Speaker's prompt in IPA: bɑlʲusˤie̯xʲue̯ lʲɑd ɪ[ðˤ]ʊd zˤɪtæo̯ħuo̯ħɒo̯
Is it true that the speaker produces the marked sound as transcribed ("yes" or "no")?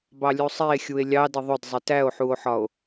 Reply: yes